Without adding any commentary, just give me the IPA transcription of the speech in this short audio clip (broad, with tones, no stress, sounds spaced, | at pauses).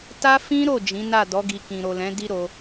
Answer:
t a˦ f ĩ˦ ɾ o˦˨ d͡ʒ ĩ˨˦ n a˦˨ d ɔ˨˦ ɡ i˧ k ĩ˨ ɾ o˨ l ɛ̃˨˦ d i˦ ɾ o˧